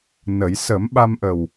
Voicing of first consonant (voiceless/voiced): voiced